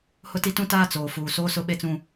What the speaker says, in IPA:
h ʊ˦ t i˦ t ũ˦ t aː˦ t͡s oː˨ f uː˨ s oː˦ s ʊ˦ ɓ e˦ t͡s ũ˦

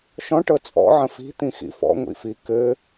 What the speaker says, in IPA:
ʃ ɔ̃ ʈ ɤ t͡sʼ ɔ̰ ʕ ə̃ f i̤ t̪ ĩ x ḭ f ɔ̰ ŋʷ ḭ f i k ɘ

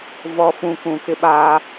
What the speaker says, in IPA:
v ɔ˨ f ũ˨ k ũ˨ k ɪ˦ ɓ aː˦

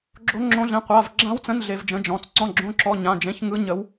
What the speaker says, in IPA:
ɡ͡ǁ o˦˥ ŋ͡ǁ õ˦˥ ɮ ẽ˧˥˧ qʷ a˧˥˧ v ɡ͡ǁ ã˦˥ w t͡s ə̃˧˥˧ n ɮ e˦˥ v d͡ʒ ə̃˦˥ d͡ʒ ɔ̃˧˥˧ t͡s ǀ ɔ̃˧˥˧ ɡ͡ǁ õ˧˥˧ ǁ ɔ˧˥˧ ɲ ã˧˥˧ d͡ʒ ẽ˧˥˧ ç ŋ ɯ˦˥ ɲ ə˦˥ w

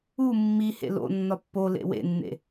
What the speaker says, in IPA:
u mː i h ḛ l o̰ nː ɒ pː o l ḛ w ḛ nː ḛ

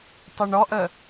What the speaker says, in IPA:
tˤ ʏ ɳ ɔ ʔ ə

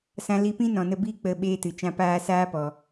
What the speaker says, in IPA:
s ã˧ l i˧ p ĩ˦ n ɔ̃˨ n ə˧ b iː˦ k͡p ə˦˨ ɓ eː˦ t ɨ˨ t͡ʃ ã˦ p aː˧ s aː˦ p ɔ˨

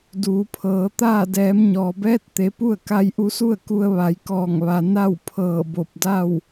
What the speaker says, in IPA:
d uː˩˧ pʰ ɤː˩˧ t̪ aː˥˨ d ɛː˩˧ m ɲ ɔː˩ b ɛː˧˥ t̚ t̪ e˩˧ p u˥˨ ə̯ k a˧ j ʔ u˧ s u˥˨ ə̯ k u˧ ə̯ ʋ a˩˧ j k ɔː˧˩ ŋ ʋ a˩ n a˥˨ w pʰ ɤː˧˩ b o˧˩ p̚ d a˥˨ w

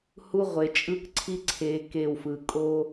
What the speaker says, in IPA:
h u˦ ʁʷ e˨ t͡ʃʼ ɯ˦ k ǀʰ i˦ ǀʰ e˨ k e˦˨ w f ɯ˨ kʼ o˦

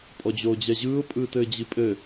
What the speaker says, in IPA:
pʼ ɔ d͡ʑ oː d͡ʑ ɛ ʑ ɯː ʊ̯ pʼ ɯː t ɘː d͡ʑ i pʼ ɘ

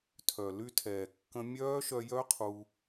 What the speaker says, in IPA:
tʰ œ˨ l y˧ tʰ ɛː˨ kː ə̃˧ mʲ œː˦ ʃ œ˧ j œ˦ qʰ u˧

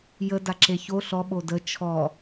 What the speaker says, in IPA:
j ə d a ǁ e ç o ɬ ɔ ɓ o d ə t͡ʃʰ ɔ

